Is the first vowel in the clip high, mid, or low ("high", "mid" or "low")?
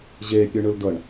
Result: mid